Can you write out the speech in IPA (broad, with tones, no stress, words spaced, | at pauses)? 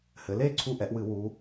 hɘ˩˧le˩˧˩ ǀʰu˦˨ʔɛ˩˧ʔwɨ˧˩˧ wu˩˧